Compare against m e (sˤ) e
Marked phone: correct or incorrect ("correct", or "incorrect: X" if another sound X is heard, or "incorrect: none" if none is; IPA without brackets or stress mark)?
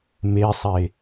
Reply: correct